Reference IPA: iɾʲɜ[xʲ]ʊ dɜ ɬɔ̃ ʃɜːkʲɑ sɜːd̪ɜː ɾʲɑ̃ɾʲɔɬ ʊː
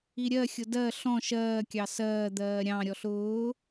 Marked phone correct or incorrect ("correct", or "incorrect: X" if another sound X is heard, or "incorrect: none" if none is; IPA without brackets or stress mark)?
correct